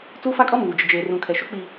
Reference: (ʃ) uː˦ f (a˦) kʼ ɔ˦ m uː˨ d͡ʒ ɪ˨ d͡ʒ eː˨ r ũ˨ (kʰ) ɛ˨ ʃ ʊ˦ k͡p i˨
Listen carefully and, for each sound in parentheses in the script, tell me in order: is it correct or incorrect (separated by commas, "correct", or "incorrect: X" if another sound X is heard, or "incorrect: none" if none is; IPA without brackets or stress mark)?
incorrect: t͡s, correct, correct